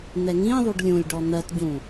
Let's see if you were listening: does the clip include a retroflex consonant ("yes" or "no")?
yes